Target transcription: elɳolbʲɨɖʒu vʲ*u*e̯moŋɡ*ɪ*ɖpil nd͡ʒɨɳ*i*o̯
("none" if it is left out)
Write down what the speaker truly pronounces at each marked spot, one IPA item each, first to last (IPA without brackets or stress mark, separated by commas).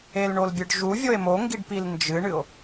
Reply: o, i, ɨ